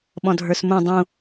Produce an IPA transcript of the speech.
ɓ ɔ̃ dʱ ə˞ s m ũ dˤ ũ

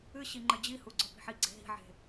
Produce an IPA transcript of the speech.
ɨ ɕ i ŋ͡ǃ ɘ d͡ʑ i h u ɡ͡ǀ ɔ p i̤ ħ i ɡ͡ǀ e̤ ɦ i̤ ʕ e̤

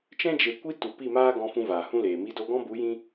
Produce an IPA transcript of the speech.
t͡ʃ ɛ̃˦ d͡ʒ e˨ kʷ i˧ t u˨ p i˦˨ m aː˦ ɡ ɔ̃˧ f ũ˧ v aː˨ h ũ˦ l eː˨ m i˧ d o˧ ɡ ɔ̃˦ b u˨˦ j ĩ˦

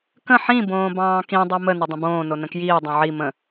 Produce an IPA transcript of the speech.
k ə̃ ħ ĩ b õː b ɑ̃ː k ĩ dˤ o m ə n ə dˤ ə̃ b õː n o n ə̃ k j iː dˤ õ ʕ i m ə̃

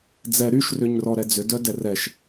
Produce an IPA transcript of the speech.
d͡z ɛ ɾ y ʃ r ʏ ɲ r ɔ ɾ ɛ d͡z ʏ d œ d ɛ r ɛ ʃ

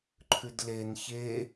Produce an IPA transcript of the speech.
ǃʰ ʉ d l e n ç e

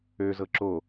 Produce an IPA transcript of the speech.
ø z ɤ ǁ o

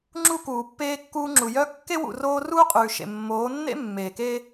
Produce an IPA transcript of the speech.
ŋ͡ǁ u˦ k uː˨ pː eː˦ kː uː˦ ŋ͡ǁ u˨ j œ˦ kː e˦ w ṵ˨ r oː˦ r uː˦ qʼ ʉː˨ ʃ ḛ˨ mː oː˨˦ nː ḛ˦ mː eː˨ k eː˦

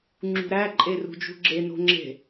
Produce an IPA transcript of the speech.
ŋ͡ǁ ṳ ɾ æ ǃʼ e r ṳ d͡ʒ ṳ ɡ͡ǁ e n o̤ ŋ͡ǁ e̤

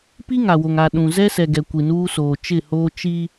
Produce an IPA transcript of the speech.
p i˦ ŋ a˨ w o˨ ŋ a˨ ɗ ũ˨ z ɛ˦ s ɛ˨ ɡ ɛ˨ kʷ i˨ n uː˦ s oː˨ t͡ʃ ɪ˦˨ h oː˦ t͡ʃ i˦

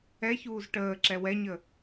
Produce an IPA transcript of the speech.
ɛ ç uː z ʈ əː ǁ ɛ w ɛ ɲ ə

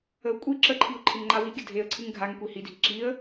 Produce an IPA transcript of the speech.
ə ʊ̯ kʷʼ i ǁ ə ǃʰ i ʊ̯ ǃʰ e ŋ ŋ͡ǃ a w i ɡʲ ə dʱ e ə̯ ǀʰ ɨ ŋ ɡʱ a ŋ kʷ i h i dʱ i ǁ i ə̯

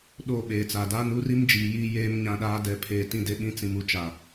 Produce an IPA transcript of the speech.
ɗ o˦˨ ɓ eː˨ t͡s a˨ d aː˦ n u˦ r i˦ m d͡ʒ iː˨˦ j iː˦ j eː˦ m ɲ ã˦ ɗ aː˦ d ɛ˨ pʰ eː˨ t ĩ˦˨ d e˦ ɓ ĩ˦ t͡s ĩ˨ m u˨ t͡ʃ a˨

